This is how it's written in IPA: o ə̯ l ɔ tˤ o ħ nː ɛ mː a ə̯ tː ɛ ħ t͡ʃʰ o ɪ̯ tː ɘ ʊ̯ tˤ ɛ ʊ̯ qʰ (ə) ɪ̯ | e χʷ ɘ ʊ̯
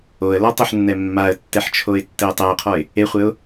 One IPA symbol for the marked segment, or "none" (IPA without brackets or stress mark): ɔ